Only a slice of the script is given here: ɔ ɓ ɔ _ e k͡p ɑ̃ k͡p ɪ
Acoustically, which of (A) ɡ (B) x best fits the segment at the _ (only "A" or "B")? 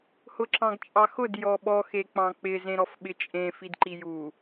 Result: B